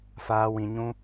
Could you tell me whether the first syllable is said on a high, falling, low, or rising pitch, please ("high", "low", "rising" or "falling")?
high